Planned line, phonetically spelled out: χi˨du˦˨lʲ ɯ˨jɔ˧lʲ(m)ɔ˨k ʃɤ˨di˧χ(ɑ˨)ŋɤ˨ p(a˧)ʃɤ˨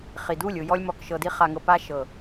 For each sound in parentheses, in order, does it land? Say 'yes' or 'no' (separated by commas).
yes, no, yes